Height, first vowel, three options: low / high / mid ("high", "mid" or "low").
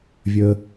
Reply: mid